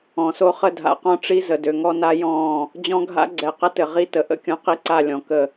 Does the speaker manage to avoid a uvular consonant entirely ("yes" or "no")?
no